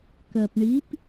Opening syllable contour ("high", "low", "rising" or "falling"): low